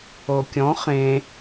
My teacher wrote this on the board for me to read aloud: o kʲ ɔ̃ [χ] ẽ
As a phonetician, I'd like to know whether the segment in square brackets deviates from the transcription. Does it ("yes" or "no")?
no